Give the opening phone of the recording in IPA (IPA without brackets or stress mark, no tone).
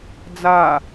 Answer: d͡z